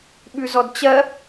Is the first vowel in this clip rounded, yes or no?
yes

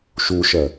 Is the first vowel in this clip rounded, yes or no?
yes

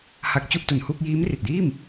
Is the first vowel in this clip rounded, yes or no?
no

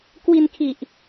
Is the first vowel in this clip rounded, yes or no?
no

